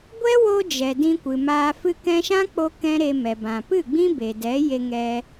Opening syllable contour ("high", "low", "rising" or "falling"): high